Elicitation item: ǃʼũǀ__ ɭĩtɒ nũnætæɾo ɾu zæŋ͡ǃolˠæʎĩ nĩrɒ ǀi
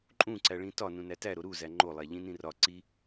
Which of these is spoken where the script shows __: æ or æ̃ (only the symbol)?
æ